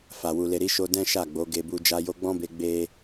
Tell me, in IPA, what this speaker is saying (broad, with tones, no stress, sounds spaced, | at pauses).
f a˨ w u˨ l e˨ ɾ i˨˦ ʃ o˧ d ɛ̃˦ ʃ a˦˨ ɡ͡b o˨˦ ɡ e˧ b u˧ d͡ʒ a˧ j o˧ ɡ͡b ɔ̃˦ b e˧ ɡ͡b e˦